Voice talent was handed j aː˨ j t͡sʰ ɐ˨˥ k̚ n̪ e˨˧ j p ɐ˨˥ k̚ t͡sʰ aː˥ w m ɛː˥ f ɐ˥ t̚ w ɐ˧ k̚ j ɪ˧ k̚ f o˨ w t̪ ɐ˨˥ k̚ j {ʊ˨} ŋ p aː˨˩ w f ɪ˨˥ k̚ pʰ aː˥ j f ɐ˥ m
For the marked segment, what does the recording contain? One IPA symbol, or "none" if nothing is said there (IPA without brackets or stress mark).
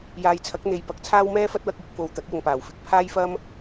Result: ʊ˨